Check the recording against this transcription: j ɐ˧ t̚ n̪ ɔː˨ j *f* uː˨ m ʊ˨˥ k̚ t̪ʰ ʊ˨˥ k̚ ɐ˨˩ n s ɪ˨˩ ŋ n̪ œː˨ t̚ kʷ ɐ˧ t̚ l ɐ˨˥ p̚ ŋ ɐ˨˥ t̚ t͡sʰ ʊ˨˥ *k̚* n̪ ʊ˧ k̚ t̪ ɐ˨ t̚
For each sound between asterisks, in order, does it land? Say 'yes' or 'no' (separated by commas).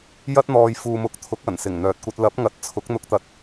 yes, yes